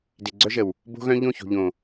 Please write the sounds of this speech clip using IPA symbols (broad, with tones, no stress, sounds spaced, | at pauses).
d e˨ ɡ͡ǀ œ˦ ʒ ə˨ w | b o̤˦ ɣ œ̃˦ ʎ õ˦˨ ç o̤˨ ʎ õ˨